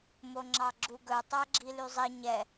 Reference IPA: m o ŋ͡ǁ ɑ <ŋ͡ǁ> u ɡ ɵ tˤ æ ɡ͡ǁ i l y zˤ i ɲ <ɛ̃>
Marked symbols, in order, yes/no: no, no

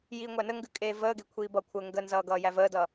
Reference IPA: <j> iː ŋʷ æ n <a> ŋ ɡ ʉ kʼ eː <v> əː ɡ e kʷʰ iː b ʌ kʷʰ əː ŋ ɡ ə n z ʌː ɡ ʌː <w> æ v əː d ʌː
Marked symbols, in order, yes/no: yes, no, yes, no

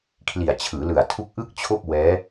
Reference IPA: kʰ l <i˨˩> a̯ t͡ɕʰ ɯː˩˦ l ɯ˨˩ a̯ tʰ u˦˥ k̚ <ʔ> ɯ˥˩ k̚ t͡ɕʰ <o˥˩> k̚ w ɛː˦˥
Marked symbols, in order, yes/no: yes, yes, yes

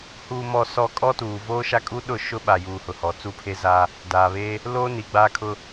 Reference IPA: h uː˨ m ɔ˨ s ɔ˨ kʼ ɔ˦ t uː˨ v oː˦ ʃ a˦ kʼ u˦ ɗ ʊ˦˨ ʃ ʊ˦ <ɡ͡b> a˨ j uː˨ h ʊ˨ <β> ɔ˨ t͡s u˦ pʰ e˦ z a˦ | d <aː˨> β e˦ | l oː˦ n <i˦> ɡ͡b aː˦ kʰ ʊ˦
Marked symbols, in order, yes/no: no, no, yes, no

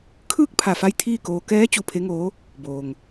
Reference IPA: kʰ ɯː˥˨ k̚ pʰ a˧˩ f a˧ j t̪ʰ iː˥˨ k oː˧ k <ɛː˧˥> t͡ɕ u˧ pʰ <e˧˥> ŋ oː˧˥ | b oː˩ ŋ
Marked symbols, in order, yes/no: yes, yes

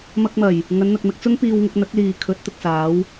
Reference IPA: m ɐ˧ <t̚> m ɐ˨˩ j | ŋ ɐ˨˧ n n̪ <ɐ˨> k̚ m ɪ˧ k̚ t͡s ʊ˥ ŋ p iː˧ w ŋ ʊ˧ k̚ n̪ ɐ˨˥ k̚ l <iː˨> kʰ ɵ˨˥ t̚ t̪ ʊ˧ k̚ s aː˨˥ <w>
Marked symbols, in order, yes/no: no, yes, yes, yes

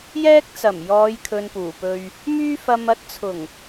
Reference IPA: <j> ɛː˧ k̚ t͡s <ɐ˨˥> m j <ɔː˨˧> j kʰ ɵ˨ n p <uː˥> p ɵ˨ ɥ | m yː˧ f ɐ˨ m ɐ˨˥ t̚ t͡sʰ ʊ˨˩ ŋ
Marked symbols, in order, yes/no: yes, no, yes, no

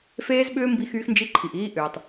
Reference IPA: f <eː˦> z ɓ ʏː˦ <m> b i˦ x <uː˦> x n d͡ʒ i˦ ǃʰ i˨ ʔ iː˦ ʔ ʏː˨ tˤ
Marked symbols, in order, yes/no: yes, yes, no

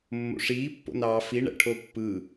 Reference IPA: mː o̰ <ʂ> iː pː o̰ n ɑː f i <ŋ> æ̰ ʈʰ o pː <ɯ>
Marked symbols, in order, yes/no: yes, no, yes

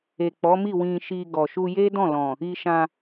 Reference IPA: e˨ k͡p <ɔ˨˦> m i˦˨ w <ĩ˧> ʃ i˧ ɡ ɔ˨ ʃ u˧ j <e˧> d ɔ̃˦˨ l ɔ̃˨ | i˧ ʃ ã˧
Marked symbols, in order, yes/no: yes, yes, no

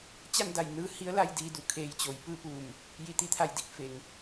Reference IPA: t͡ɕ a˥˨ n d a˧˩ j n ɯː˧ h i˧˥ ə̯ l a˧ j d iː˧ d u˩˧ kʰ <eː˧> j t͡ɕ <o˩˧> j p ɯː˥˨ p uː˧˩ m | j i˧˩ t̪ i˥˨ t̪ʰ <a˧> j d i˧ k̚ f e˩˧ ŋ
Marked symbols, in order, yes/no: yes, yes, no

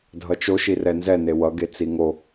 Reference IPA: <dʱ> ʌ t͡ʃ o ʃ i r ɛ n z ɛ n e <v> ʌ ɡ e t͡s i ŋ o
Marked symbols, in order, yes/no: yes, no

